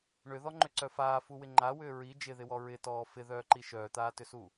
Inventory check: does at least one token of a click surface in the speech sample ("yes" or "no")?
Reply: yes